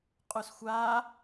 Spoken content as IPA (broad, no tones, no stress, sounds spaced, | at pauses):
qʼ u s xʷ a